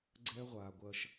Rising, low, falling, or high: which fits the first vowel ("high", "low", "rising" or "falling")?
high